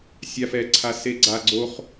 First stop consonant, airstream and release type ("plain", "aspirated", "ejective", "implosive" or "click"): click